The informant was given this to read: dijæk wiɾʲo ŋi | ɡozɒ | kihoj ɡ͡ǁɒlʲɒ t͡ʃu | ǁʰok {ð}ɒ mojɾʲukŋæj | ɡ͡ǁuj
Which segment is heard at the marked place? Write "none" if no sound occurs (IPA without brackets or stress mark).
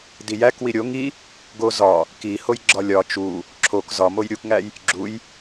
z